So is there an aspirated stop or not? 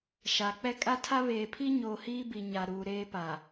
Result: yes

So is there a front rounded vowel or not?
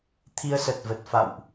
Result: no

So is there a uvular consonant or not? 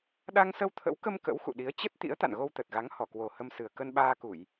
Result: no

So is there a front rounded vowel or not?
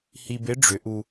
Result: yes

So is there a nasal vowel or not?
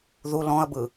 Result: yes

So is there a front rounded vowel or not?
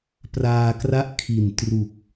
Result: no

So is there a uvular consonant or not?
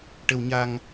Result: no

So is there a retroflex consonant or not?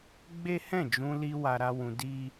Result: no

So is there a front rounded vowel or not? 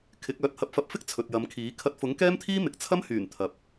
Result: yes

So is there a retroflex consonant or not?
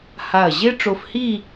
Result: yes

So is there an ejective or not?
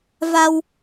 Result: no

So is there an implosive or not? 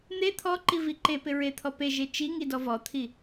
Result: no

